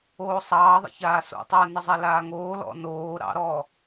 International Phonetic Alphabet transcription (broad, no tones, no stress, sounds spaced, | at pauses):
oː sˤ ɑː ðˤ ɛ̰ ç aː s o̰ tˤ əː n ə zˤ ɛ l aː ŋ oː l ɔ̰ n oː ɾ ɑ̰ ɾ ɔ